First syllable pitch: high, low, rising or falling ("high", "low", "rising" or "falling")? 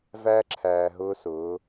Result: high